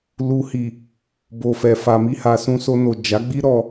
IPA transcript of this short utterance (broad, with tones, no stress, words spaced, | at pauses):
lu˨hi˨ | bo˨fɛ˨ fa˨mi˧ha˨ sũ˧so˧no˨ d͡ʒa˨˦ɡ͡bi˦ ɾɔ˧